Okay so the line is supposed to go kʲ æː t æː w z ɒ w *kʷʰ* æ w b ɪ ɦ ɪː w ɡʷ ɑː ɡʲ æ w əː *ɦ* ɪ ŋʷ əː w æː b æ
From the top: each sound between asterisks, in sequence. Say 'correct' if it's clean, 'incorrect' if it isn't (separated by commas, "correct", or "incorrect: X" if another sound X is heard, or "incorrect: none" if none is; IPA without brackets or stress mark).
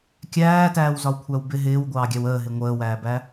correct, correct